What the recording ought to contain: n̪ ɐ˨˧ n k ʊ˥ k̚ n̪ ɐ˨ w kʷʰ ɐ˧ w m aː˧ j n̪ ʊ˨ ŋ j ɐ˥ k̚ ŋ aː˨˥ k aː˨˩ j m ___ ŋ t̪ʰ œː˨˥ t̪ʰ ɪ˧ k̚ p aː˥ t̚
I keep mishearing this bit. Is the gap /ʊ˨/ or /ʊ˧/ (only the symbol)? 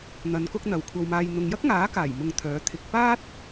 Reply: ʊ˧